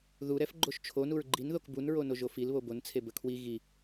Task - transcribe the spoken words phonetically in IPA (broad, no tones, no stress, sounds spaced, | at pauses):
ð u ɾ ɛ f ɡ͡ǃ o ʃ t͡ʃʰ o n u ɹ ɡ͡ǃ i n ð o k b u n ɹ o n o ʒ o f i l β o b o n t͡sʰ e b ə kʰ w i ɣ i